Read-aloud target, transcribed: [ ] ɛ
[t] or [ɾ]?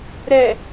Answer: ɾ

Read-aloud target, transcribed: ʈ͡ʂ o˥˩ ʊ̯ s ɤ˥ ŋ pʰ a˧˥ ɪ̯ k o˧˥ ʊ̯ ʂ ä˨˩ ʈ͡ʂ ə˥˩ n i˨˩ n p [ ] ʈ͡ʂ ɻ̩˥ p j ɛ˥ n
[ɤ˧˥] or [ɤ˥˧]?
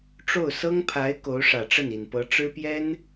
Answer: ɤ˧˥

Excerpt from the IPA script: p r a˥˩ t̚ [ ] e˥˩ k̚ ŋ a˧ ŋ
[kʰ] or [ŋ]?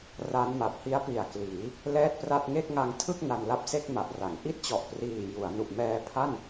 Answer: ŋ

